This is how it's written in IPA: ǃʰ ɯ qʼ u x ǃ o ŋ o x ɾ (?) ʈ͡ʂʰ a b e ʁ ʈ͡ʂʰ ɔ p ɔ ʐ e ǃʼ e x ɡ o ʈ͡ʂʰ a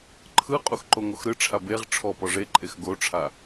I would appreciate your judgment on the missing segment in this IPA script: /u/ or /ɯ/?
ɯ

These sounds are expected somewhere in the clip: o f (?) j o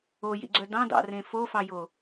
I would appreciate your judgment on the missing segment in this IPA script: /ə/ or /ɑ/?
ɑ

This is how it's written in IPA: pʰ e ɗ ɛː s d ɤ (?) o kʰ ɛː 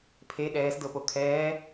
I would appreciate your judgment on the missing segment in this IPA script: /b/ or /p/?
p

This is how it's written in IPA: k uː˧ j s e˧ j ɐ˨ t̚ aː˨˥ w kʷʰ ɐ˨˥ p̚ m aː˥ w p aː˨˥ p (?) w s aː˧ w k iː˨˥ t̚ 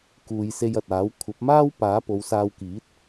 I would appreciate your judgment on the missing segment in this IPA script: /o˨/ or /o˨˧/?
o˨˧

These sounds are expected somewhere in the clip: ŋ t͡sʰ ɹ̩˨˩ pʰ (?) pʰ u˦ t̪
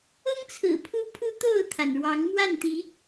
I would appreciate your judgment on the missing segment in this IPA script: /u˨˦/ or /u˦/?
u˦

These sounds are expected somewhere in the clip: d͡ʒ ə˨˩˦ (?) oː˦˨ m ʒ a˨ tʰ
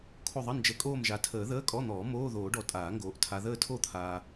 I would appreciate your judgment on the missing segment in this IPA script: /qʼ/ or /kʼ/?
kʼ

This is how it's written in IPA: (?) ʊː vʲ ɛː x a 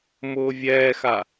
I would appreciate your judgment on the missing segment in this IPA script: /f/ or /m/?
m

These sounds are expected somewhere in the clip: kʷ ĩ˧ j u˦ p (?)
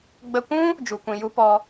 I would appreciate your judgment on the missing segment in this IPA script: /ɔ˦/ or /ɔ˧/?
ɔ˧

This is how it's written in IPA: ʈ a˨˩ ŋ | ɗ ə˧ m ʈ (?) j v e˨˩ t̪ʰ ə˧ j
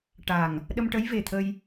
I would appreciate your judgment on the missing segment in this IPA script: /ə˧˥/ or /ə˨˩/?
ə˧˥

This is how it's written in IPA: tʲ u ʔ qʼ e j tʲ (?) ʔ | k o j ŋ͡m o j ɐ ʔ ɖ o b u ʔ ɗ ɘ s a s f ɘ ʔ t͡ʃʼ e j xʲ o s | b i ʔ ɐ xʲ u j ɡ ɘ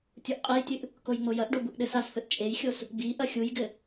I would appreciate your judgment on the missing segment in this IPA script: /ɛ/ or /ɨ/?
ɨ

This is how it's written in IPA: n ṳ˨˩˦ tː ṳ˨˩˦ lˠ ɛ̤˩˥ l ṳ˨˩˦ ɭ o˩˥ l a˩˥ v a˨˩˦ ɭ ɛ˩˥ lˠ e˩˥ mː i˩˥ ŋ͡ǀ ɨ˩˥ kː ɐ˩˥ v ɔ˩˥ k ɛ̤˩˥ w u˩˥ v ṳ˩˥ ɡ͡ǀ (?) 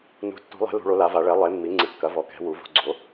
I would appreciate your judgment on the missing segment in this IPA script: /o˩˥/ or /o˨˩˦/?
o˩˥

